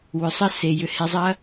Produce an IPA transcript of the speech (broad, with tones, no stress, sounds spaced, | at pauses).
w ʏ˨˦ sˤ ə˦ s e˨ j ʏ˧ h e˧ zˤ ɐ˦